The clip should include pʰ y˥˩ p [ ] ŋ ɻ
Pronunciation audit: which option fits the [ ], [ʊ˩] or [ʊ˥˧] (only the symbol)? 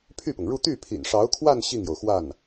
ʊ˩